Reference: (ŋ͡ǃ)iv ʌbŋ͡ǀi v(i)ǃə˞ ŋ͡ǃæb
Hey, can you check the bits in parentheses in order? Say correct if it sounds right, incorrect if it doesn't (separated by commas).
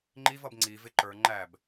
correct, incorrect